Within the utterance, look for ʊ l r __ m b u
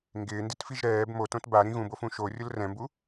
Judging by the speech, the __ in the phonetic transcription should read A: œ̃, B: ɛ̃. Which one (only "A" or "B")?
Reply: B